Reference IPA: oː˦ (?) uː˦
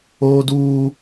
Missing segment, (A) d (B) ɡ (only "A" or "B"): A